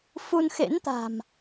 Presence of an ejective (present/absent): absent